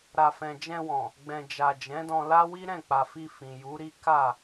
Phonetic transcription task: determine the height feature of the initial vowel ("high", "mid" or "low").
low